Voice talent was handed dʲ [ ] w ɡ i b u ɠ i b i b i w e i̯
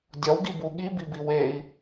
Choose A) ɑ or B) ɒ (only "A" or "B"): B